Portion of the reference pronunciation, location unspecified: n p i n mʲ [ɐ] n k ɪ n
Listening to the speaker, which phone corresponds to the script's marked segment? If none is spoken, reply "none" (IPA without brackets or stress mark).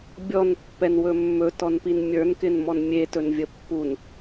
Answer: ə˞